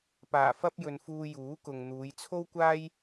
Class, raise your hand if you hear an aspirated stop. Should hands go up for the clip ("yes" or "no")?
yes